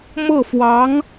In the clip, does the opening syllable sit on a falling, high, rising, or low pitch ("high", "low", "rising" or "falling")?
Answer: falling